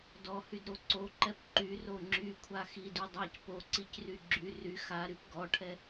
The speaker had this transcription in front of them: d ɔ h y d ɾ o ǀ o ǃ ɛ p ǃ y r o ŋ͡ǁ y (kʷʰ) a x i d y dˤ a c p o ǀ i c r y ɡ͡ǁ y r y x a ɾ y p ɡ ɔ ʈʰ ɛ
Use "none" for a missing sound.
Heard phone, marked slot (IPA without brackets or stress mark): kʷʰ